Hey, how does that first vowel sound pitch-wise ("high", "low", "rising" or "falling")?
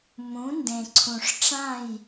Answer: rising